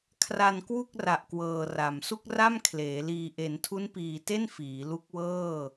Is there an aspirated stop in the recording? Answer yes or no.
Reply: yes